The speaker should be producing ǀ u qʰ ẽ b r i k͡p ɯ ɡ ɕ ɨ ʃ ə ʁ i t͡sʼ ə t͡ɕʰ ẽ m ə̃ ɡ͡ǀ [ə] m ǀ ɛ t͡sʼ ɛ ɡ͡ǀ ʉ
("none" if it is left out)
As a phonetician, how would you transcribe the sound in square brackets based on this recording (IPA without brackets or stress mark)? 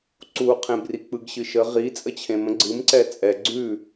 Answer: ɨ